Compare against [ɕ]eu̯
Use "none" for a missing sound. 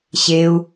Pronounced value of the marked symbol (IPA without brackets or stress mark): ɕ